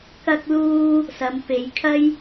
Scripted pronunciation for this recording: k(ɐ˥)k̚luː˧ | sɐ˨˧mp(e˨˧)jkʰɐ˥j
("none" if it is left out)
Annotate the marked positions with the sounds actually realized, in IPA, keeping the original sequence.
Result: ɐ˧, e˨˧

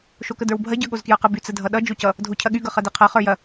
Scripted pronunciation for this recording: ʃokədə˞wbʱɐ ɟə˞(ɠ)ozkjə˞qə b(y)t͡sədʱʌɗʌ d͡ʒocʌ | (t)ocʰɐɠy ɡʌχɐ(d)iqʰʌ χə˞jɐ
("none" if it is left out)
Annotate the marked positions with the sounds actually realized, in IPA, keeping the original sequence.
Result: ɠ, y, dʱ, d

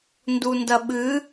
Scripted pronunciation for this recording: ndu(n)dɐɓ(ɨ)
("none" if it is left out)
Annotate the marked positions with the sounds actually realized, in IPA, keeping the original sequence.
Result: n, ɨ

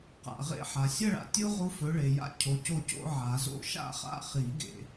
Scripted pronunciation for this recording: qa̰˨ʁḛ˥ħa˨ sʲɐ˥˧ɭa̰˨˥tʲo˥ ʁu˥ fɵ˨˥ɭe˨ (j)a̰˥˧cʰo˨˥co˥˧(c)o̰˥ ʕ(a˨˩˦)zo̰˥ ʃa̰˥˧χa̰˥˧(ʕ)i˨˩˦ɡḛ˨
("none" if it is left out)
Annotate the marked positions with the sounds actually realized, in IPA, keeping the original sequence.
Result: j, c, a˨˩˦, χ

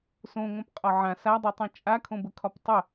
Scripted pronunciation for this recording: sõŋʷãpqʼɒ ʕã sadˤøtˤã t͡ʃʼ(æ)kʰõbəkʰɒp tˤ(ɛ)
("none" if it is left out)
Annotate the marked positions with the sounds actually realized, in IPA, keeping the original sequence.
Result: a, ə

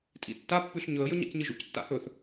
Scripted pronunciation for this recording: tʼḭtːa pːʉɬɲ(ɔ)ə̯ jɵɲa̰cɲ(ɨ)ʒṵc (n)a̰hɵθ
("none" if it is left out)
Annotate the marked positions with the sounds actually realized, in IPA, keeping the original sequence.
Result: ɵ, ɨ, tː

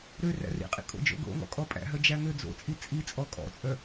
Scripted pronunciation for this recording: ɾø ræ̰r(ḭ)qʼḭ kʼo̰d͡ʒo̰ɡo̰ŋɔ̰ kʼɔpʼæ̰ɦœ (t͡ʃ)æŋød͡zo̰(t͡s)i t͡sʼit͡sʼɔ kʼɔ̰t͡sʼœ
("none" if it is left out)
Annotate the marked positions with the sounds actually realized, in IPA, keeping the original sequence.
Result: ḭ, d͡ʒ, t͡sʼ

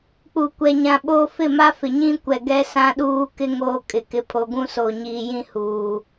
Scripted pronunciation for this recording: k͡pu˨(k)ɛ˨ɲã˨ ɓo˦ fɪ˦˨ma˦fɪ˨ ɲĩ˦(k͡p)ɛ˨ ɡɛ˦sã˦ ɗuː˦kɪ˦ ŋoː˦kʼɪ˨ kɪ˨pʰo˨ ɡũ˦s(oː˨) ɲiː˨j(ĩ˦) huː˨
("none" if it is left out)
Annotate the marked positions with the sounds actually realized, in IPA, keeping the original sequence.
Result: kʷ, kʷ, o˨, ĩ˦

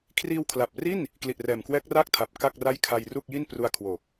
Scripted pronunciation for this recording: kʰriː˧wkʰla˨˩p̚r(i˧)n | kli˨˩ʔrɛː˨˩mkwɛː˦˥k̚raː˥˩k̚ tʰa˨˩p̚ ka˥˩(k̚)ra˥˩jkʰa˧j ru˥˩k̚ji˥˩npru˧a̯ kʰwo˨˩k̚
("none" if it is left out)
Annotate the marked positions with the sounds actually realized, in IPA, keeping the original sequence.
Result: i˥˩, k̚

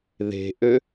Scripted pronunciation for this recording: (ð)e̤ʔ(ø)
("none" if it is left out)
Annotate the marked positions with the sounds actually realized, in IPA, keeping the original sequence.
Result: ð, ø

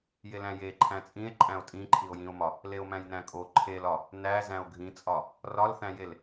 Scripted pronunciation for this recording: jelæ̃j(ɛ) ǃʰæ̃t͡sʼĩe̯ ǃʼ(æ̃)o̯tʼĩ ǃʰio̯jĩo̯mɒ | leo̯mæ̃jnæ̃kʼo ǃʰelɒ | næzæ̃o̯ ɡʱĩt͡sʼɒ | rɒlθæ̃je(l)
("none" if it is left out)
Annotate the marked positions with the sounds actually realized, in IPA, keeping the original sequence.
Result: e, æ̃, l

